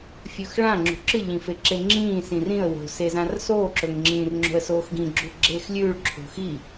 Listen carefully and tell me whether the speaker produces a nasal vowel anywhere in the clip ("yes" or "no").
yes